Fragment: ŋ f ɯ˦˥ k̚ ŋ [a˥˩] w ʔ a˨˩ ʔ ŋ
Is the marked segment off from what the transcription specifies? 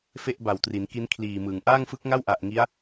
no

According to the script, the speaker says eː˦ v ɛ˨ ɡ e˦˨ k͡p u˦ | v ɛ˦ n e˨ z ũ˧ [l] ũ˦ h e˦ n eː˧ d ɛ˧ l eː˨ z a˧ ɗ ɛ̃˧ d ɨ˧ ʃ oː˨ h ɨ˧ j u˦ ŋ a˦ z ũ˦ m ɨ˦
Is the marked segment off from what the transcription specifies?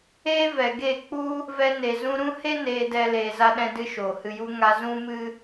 yes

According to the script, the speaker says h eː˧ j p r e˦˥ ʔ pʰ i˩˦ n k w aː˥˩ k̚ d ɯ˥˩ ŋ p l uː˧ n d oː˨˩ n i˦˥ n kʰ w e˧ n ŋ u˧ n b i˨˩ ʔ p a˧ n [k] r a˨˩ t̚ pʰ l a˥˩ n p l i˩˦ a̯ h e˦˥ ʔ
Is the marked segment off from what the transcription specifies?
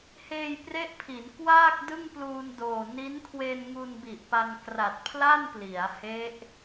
no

